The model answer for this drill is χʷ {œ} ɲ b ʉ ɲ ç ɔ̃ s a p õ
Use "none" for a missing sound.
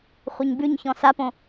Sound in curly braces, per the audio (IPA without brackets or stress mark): œ